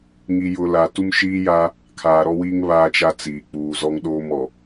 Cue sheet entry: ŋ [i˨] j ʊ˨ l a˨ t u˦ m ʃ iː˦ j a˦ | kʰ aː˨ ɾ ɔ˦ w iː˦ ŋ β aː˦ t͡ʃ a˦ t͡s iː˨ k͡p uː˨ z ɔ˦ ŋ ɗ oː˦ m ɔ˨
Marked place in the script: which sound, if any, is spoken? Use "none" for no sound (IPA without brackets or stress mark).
i˨